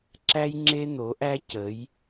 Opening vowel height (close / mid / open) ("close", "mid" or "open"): open